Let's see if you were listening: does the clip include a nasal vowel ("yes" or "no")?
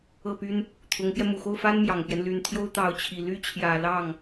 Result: no